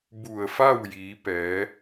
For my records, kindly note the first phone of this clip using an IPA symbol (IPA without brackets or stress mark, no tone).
b